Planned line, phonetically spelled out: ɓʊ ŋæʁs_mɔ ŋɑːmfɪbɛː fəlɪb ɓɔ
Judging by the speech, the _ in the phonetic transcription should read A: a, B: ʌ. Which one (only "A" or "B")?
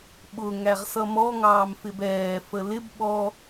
B